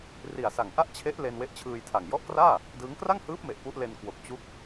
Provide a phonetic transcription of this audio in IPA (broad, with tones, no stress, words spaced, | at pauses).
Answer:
ri˨˩a̯ sa˨˩ŋʔa˥˩ʔ t͡ɕʰe˦˥ʔ le˧nwe˦˥ʔ t͡ɕʰɯː˧jtʰa˨˩ŋ jɔ˦˥ʔkraː˥˩ | dɯː˦˥ŋ kra˥˩ŋhɯː˦˥p̚me˨˩ʔ pu˦˥ʔle˧n kwo˨˩k̚t͡ɕu˦˥k̚